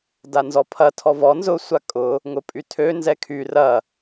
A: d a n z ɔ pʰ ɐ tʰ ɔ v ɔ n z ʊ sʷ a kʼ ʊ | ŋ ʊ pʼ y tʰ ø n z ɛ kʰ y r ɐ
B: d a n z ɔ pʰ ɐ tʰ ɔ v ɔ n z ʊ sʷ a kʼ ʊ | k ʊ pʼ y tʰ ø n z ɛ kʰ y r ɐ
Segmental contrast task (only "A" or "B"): A